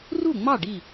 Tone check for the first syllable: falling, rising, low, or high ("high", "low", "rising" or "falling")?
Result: falling